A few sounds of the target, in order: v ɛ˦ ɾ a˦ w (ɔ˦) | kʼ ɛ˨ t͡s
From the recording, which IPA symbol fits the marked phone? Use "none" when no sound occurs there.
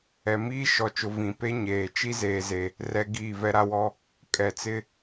ɔ˦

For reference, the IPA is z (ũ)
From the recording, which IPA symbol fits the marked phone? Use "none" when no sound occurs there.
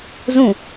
ũ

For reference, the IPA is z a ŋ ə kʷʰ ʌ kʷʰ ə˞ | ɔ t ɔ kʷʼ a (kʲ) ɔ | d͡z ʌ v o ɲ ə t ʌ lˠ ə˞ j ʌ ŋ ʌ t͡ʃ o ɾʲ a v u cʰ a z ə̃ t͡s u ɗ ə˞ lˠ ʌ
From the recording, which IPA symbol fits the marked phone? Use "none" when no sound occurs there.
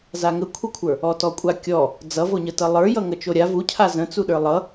kʲ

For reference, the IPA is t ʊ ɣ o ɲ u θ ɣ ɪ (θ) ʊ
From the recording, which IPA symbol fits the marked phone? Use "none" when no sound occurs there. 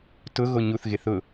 θ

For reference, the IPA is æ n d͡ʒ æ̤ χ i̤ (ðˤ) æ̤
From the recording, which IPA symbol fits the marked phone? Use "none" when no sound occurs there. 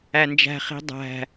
dˤ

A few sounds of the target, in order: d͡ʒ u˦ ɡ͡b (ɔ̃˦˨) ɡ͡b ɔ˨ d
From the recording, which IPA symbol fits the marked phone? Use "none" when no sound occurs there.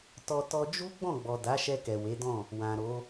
ɔ̃˦˨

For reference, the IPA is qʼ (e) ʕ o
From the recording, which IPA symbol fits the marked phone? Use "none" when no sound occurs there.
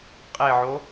e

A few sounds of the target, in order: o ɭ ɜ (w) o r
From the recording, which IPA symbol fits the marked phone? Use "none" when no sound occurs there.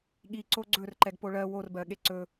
w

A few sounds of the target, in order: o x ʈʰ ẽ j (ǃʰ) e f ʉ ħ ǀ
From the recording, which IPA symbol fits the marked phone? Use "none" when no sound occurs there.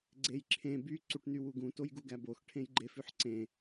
ɡ͡ǃ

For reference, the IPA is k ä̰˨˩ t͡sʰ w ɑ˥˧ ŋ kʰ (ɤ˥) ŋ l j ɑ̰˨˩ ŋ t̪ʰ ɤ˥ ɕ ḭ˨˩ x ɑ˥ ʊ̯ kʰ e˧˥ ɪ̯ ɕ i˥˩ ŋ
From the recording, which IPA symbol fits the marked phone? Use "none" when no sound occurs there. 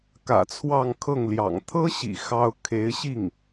ɤ˥˩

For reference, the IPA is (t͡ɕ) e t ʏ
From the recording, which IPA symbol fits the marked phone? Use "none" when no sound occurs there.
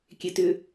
kʲ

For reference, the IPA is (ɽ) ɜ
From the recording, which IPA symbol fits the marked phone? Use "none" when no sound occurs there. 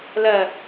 l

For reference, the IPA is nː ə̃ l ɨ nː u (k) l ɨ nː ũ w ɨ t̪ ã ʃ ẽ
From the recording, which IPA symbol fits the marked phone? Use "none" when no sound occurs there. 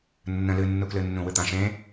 k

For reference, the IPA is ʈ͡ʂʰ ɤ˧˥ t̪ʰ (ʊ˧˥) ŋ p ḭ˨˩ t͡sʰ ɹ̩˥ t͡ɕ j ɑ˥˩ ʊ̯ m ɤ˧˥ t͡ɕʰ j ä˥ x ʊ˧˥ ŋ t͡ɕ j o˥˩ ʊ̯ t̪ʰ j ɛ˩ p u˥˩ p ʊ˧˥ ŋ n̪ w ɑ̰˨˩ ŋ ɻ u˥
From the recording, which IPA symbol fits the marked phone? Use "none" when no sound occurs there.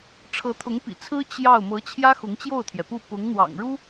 ʊ˧˥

